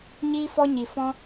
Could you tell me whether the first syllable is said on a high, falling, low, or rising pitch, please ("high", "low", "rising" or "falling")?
high